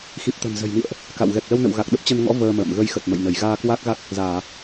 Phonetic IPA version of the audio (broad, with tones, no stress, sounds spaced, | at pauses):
x i˨˩ p̚ t̪ ə̤˨˩ n z ə̤˨˩ j m ḭ˧˨ ə̯ ʔ | k a̰˧˨ w ɣ ɛ˨˩ k̚ l ə˧ w n ə̰˧˨ w ɣ a˨˩ k̚ ɗ ə˦˥ p̚ t͡ɕ ə˧ n ŋ ɔ̰˧˥ v əː˧ m ə̰ː˧˨ m ɣ ə˧ j x ə˨˩ t̚ m ə̰˧˨ j n ə˧˩ j ɣ aː˧ k w a˦˥ k̚ ɣ a˦˥ k̚ | z aː˧˩˨